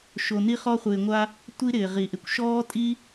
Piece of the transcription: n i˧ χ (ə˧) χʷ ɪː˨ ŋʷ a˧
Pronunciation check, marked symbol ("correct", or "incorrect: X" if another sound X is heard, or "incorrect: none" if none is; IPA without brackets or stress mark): incorrect: ɔ˧